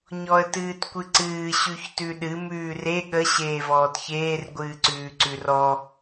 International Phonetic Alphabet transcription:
ɲɔə̯tɨːtkʷɨǀɨː ɕʉçtʉɗɨ mʉːre ɠə ɕeːvɔːtçeːr ɡʷɨːǀʉːǀʉrɔ

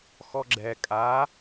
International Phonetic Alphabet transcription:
xɔɡ͡ǁɛ kʼa

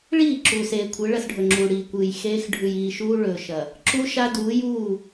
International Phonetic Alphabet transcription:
ɭiː˦˨ ǁuː˨seː˨kʷʰɨ˨˦ ɭɐ˦sɖʱɵ˨ŋ͡ǁuː˨ɽiː˨ kʷɨː˨jxeː˦x ɖʱʉ˨jiː˨ʃuː˦ ɭɵː˨ʃɐ˨ | ǁu˦ʃa˦duː˨˦juː˦˨

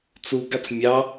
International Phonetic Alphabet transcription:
t͡suɡat͡s mʲɑ

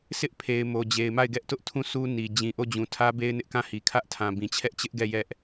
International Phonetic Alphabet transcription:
sɪ˦ʔpʰe˨ɪ̯ mo˨d͡ʑe˨ɪ̯ ma˦˨ɪ̯ɡɛ˦ʔtʊ˦ʔtʰũ˦˨ sʰu˦ ni˨ d͡ʑĩ˨ʔo˦˨d͡ʑũ˨ tʰä˦be˦ɪ̯nɪ˦ʔ kã˦˨hi˨ kʰä˦ʔtʰã˨bĩ˨ t͡ɕʰɛ˦ʔt͡ɕɪ˦ʔɡɛ˦˨ jɛ˦ʔ

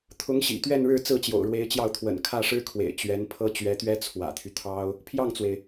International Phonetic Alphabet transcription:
t̪ʰʊ˧˥ŋɕḭ˨˩ t̪ɥɛ˥˧nɻɻ̩˥˧ t͡sɹ̩˥˩t͡ɕjo̰˨˩ʊ̯ɻwe˧˥ɪ̯t͡ɕjɑ˥˩ʊ̯ t̪ʰwə̰˨˩nkʰä˥˩ʂɻ̩˥kʰwḛ˨˩ɪ̯ t͡ɕɥɛ˧˥npʰɤ˥ t͡ɕɥɛ˧˥t̪ɥɛ˥ t͡sʰwä̰˨˩t̪ʰy˦ t̪ʰɑ˥ʊ̯ | pʰjɑ˥˩ŋt͡swe˩ɪ̯

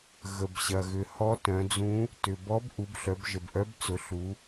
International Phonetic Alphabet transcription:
ɣə˩bɕɐ˩ɣʏ˩ hɔ˧˥tœ̃˩˧d͡zũ˧˥ | tʏ˩bɔ˧˥b ʔu˩˧bɬœ˩˧bʒə˩bʔœ˧˥b t͡sʊ˩˧ɬu˩˧

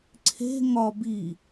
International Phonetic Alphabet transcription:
ǀʰe̤ ŋɒ bi

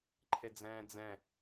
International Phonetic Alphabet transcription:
ǃʰed͡zɛ̃ːd͡zɛ̃

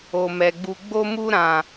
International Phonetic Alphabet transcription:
o˨mɛ˨ɡ͡bu˧ ɡ͡bo˦mu˦ɾã˨

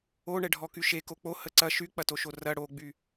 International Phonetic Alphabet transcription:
oɳɛɖʱɔ kyʃe kok͡po həǀɐ ʃyk͡pɐtoʃo rɐ ɽoɡ͡by

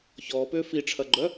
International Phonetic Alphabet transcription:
çɔːpʏː fiʈ͡ʂʰɐɡ͡ǃœ

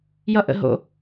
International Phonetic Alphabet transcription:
jʌʔə̰ ɦo̰

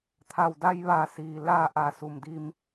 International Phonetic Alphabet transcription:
t̪ʰa˧˩w da˧jʋa˧˩siː˩ laː˥˨ ʔa˧˩su˩m di˧m

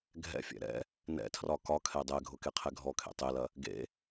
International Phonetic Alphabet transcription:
ɡʱɛ̰fʲɛ̰ ɾɛ̰ | nɛ̰tʰrɒ kɒkʰɛ dˤɛɡʱʊkeqʰɛ ɡʱɔkʰḛ tˤelɐ | ɡḛ

